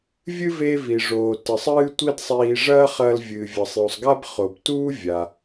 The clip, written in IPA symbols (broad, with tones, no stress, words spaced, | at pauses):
vʲɨ˥ ve˧vi˩ʐoː˩tɨ˩sˤ ɨː˧ tʷi˥dsˤiː˧ ʐɐː˥χɐː˧l vʲɨː˩vʲɐ˩sˤju˩sˤɡa˥b χo˩btuː˥ vʲa˩